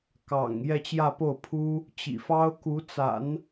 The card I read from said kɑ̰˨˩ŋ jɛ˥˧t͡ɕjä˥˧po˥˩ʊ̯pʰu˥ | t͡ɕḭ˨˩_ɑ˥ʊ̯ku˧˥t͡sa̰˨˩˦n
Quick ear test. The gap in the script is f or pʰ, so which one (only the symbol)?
f